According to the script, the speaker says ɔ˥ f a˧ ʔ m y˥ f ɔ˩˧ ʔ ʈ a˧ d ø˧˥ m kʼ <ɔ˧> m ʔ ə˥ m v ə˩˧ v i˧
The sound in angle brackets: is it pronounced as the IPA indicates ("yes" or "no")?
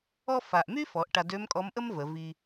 no